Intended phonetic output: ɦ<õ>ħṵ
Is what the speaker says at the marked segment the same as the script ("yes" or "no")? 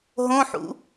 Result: yes